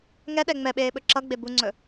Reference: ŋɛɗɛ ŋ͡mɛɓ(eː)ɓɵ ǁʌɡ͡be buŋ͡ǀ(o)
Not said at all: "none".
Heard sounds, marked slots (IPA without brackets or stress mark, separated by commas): eː, ɵ